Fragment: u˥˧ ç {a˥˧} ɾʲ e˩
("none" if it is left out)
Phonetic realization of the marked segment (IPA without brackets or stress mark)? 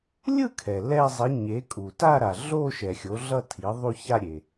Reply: a˥˧